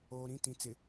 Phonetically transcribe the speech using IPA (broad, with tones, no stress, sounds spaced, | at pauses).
oː˨ ɾ ĩ˦˨ t ĩ˨ t͡s ɪ˨